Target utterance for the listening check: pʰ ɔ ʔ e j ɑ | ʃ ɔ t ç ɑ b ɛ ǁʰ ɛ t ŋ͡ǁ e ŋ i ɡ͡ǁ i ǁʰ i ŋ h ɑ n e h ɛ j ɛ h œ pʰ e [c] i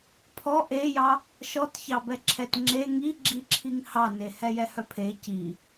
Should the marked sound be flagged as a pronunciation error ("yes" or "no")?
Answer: no